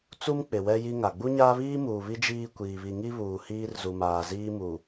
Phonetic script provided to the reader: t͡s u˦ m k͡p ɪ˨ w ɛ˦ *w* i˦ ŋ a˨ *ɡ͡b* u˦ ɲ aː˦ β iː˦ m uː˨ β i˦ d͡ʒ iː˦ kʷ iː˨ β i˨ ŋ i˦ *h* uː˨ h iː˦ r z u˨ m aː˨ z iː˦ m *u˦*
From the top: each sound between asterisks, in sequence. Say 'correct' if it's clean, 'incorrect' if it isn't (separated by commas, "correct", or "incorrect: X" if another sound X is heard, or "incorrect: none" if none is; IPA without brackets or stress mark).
incorrect: j, correct, incorrect: β, incorrect: u˨